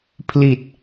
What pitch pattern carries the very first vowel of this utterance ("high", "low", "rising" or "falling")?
low